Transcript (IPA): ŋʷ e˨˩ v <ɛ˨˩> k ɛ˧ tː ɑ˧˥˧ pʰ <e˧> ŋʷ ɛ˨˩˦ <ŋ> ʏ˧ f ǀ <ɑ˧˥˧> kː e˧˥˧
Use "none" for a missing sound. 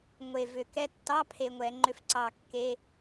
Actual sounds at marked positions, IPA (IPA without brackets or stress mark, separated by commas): ʏ˨˩, e˧, ŋ͡ǃ, ɑ˨˩